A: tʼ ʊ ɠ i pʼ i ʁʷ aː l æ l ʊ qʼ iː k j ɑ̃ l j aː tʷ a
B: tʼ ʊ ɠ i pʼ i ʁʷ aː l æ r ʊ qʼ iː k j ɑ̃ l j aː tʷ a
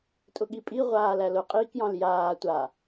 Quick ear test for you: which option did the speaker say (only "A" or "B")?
A